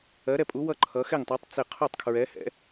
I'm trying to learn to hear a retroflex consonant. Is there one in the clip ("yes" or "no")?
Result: no